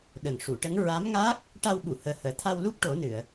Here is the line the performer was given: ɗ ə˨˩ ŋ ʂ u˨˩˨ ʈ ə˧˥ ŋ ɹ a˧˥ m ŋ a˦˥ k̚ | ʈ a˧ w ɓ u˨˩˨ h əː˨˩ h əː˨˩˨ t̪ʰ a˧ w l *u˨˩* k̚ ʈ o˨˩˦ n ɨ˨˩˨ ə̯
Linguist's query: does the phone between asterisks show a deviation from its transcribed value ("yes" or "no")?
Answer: yes